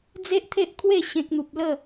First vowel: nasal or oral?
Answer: oral